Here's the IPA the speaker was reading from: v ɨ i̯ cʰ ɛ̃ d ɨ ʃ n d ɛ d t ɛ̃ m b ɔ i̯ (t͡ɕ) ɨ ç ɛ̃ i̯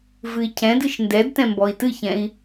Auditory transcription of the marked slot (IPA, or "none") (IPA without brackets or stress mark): t